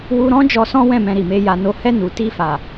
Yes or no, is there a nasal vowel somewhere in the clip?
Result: yes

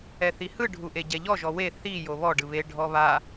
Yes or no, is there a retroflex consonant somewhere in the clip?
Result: yes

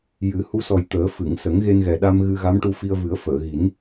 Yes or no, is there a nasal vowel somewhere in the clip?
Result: no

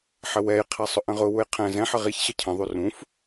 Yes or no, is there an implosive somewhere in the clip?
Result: no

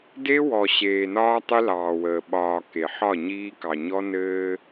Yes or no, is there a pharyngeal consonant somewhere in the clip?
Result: yes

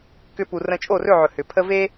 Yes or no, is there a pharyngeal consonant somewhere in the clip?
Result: yes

